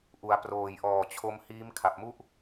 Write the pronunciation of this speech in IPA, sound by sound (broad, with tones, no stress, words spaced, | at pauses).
ʔu˩˦a̯ proː˨˩jʔɔː˨˩t͡ɕʰo˦˥m hiː˦˥mkʰa˨˩p̚mu˥˩ʔ